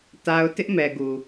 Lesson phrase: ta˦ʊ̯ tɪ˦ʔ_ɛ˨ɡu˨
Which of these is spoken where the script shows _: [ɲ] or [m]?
m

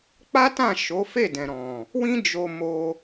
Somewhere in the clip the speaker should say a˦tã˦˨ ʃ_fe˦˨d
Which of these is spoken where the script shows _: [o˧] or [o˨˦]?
o˨˦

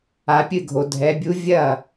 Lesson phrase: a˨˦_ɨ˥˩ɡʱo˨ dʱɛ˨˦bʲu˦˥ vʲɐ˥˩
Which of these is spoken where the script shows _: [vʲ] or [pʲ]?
pʲ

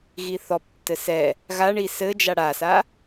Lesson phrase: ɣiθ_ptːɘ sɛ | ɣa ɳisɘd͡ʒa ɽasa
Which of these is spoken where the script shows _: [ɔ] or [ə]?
ɔ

